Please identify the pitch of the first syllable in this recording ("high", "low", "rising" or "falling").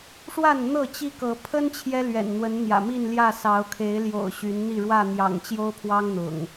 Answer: falling